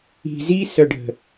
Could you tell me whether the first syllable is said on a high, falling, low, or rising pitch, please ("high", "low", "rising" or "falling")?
low